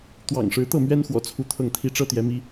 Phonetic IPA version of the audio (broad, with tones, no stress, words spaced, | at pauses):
t̪wɑ̰˨˩ŋʂɻ̩˧˥t̪ɤ˥˩mɥɛ˥n xwɔ̰˨˩t͡sʰu˥˧t̪ʰɤ˥˩ŋ t̪ʰi˥ʈ͡ʂɤ˥t̪jɛ˧˥mi˥